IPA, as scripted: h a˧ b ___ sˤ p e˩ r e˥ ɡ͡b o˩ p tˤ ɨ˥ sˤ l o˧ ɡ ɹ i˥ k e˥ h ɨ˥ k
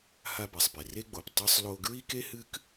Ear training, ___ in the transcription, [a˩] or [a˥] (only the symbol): a˩